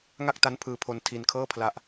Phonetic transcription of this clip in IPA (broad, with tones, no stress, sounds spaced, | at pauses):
ŋ a˥˩ k̚ t a˦˥ n pʰ ɯː˧ pʰ o˧ n tʰ i˧ n kʰ ɤː˥˩ pʰ l a˦˥ ʔ